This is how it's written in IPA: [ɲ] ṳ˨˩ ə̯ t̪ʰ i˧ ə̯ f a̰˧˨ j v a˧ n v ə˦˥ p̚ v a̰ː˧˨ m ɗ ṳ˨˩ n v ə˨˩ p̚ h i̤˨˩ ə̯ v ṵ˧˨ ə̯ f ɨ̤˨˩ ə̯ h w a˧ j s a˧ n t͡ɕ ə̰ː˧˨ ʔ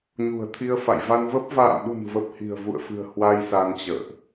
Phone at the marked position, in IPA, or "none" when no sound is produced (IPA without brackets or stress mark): ɲ